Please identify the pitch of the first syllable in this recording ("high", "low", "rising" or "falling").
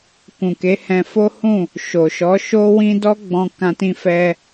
low